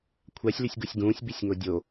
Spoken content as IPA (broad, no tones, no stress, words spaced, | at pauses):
kʷʰasʲlysʲɡusʲ ɡũːsʲbisʲŋo dʲo